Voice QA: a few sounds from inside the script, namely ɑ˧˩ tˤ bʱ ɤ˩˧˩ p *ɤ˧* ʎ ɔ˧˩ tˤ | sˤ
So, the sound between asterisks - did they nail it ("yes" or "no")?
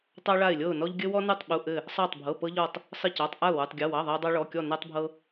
yes